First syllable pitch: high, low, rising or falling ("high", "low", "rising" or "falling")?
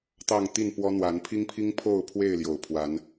falling